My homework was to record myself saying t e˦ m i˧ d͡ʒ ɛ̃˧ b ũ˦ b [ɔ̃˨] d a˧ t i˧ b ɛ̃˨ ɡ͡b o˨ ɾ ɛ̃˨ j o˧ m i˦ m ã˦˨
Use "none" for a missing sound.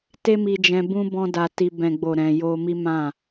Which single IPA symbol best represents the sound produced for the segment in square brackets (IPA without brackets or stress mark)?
ɔ̃˦